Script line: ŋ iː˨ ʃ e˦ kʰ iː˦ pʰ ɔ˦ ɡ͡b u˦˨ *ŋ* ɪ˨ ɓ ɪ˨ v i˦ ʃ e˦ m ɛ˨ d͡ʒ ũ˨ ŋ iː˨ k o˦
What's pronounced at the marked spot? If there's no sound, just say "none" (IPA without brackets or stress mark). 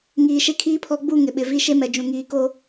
ŋ